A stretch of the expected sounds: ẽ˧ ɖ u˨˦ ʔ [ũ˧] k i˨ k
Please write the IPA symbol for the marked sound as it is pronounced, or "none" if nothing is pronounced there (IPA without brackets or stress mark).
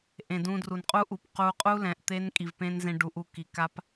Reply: u˧